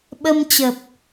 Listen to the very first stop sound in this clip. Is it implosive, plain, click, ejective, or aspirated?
implosive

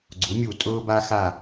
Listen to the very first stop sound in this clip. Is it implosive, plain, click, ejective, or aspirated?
click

